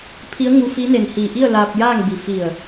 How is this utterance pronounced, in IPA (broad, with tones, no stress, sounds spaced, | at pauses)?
pʰ i˧˥ ə̯ ŋ u˧ f i˧˥ n e˧˩ n h iː˧˩ ʔ i˥˨ ə̯ l aː˧ p̚ j aː˥˨ ŋ b i˧˩ f i˧˩ ə̯